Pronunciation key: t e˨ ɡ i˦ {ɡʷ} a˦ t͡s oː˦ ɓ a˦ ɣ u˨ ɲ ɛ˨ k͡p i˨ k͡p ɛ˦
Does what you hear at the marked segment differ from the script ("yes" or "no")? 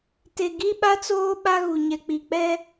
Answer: yes